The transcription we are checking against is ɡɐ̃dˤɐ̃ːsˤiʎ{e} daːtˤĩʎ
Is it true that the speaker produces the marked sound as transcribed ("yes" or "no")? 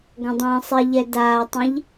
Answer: no